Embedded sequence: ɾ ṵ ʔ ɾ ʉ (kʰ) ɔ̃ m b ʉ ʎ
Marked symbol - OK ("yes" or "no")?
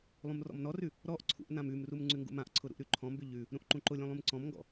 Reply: no